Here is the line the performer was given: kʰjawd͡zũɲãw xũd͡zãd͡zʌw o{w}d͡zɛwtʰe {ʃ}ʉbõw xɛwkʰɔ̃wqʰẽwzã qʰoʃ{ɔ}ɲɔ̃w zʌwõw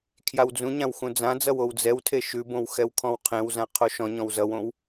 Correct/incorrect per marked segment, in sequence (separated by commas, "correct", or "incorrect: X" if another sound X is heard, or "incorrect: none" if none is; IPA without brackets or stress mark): correct, correct, incorrect: ɔ̃